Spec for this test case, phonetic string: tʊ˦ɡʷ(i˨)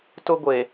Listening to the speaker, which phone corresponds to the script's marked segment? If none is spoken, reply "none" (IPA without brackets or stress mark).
e˨